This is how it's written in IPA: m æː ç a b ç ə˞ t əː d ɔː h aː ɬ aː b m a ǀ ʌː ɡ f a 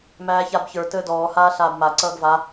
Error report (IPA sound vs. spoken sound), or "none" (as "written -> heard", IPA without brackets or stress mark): f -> v